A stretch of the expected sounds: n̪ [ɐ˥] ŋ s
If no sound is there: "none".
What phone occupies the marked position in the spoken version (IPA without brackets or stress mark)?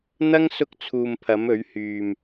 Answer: ɐ˥